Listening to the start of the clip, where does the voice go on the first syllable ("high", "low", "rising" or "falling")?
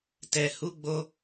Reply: low